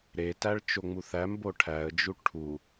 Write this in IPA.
ɾ e t æ ɭ t͡ʃ o ŋ͡m u θ æ m b o ʈʰ æ ə̯ d͡ʒ u ʈʰ u

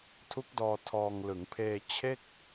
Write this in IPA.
tʰ u˦˥ k̚ d ɔː˧ tʰ ɔː˧ ŋ l ɯ˩˦ ŋ pʰ eː˧ t͡ɕʰ e˥˩ k̚

